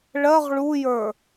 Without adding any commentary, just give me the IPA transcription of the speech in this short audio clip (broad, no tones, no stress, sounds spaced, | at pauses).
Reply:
ɭ ɜ ʁ ɭ u j ə˞